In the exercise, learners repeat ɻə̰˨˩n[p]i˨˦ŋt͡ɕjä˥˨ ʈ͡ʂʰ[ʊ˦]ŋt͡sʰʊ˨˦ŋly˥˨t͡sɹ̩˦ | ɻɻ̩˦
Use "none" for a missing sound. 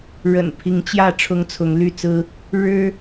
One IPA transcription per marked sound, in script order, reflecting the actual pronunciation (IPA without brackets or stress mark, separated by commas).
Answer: pʰ, ʊ˦